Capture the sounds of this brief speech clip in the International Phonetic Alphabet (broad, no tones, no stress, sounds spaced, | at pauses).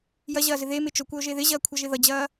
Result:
j ɐ ʑ ɐː z ɪ ð e m ɪ t͡ʃ o kʷ ɐ o̯ ʒ e ð ɪ ʑ ɐː kʷʰ ʌ ʒ ɪ ð ʌ d͡ʑ ɐː